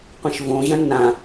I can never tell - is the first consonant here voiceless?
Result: yes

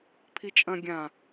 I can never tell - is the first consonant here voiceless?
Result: yes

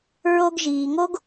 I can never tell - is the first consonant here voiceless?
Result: no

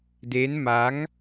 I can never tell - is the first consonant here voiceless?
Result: no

